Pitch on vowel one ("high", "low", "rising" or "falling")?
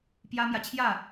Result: high